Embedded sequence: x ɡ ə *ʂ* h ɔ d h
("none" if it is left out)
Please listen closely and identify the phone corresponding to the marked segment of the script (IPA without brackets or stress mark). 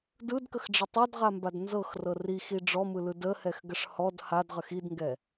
ʂ